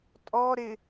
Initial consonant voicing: voiceless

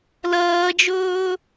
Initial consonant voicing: voiced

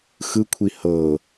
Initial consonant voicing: voiceless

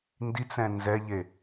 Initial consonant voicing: voiced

